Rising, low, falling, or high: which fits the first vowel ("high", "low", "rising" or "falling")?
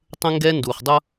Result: high